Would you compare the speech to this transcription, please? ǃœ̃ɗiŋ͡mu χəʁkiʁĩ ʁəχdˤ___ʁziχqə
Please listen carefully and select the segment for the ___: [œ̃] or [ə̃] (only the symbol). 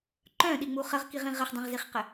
œ̃